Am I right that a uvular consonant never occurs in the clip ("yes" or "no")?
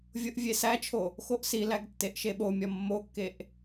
yes